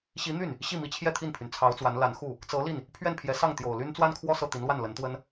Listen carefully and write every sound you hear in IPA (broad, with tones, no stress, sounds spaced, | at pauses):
ɕ i˧˥ n̪ y˥˩ n | ɕ i˥˩ m i˧˥ t͡ɕʰ j ɛ˥˧ t̪ʰ i˥˩ n pʰ y˩ n t͡sʰ ɑ˧˥ ʊ̯ t͡s w a˧˥ n l a˧˥ n x u˥˩ | t͡s ɤ˧˥ l i˥˩ n | pʰ ɥ ɛ˥˩ n pʰ j ɛ˧˥ s ɑ˥˩ ŋ t̪ j o˨˩ ʊ̯ l y˥ n t͡s w a˥ n kʰ w ɔ˥˧ s ɤ˥˩ t̪ i˧˥ n l w a˥˩ n l ə˧˥ n t̪ w ə˥ n